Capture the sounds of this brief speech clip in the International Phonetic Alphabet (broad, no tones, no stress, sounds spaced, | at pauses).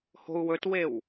h o̤ u̯ w ɵ t w e w